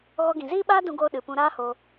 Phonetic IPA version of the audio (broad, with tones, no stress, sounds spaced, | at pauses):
ɣ ɔ˧ ɡ ĩ˨ z iː˦ ɓ aː˦ d ũ˧ ɡ oː˧ ɗ ɨ˨ p ũ˧ ɾ aː˦ h o˧